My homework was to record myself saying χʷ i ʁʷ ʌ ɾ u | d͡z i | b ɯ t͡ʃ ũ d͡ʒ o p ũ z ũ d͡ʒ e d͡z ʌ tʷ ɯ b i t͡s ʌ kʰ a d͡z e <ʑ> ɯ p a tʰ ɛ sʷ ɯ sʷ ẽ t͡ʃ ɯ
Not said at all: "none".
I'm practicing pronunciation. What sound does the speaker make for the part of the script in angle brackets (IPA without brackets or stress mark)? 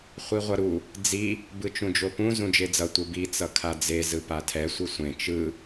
z